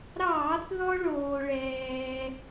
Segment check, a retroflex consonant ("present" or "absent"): present